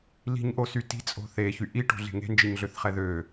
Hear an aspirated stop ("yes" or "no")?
no